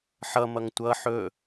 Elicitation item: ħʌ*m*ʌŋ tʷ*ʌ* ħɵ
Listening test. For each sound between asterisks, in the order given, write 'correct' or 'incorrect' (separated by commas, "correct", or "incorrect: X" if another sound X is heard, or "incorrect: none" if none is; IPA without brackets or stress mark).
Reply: correct, correct